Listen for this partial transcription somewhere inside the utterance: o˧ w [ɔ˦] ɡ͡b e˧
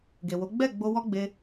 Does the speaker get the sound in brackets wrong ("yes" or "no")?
no